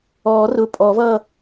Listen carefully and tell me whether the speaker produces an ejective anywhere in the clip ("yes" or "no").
yes